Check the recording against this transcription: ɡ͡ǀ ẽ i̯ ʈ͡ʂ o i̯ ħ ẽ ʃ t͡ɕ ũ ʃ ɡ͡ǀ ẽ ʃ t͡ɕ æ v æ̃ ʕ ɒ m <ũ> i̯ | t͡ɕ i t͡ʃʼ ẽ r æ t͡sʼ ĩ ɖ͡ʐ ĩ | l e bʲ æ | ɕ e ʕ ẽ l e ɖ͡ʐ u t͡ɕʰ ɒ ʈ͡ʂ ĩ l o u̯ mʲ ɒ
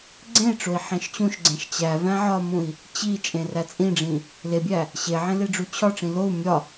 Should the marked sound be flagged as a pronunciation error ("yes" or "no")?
no